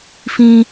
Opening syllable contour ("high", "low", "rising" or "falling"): high